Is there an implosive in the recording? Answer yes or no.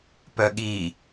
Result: yes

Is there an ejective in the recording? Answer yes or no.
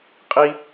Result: yes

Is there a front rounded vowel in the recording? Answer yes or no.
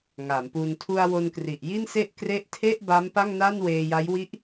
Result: no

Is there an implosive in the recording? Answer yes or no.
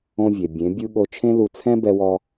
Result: yes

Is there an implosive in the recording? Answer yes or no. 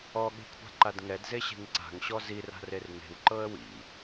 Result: yes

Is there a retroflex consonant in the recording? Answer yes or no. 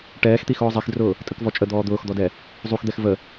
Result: yes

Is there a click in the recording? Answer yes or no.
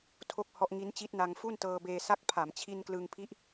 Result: no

